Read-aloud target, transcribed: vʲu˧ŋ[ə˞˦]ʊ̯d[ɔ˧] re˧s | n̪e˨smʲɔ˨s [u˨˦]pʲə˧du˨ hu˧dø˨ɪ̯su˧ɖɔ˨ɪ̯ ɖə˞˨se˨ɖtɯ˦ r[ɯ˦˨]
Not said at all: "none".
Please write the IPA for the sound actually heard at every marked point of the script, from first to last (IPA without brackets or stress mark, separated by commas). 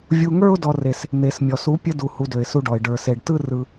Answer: ə˞˦, ɔ˧, u˨˦, ɯ˧